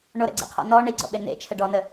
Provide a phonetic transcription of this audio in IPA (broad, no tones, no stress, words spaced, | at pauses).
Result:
ɳoɾɛ̰ɡ͡ǀɛ̰qʰɔ̰ nɔ ɳiɡ͡ǀɔ̰ɓe nḛt͡ʃʰə ɖɔnə